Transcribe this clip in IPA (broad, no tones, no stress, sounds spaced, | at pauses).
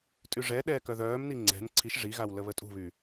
tʼ y ʐ ɛ ɗ ɛː k œ ð œː m n i ŋ͡ǀ ɛ̤ n ǀʰ i ʃ ʐ i ɣ a w l ə β ə tʼ ṳ β y